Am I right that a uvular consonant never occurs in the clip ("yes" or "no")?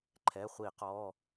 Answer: no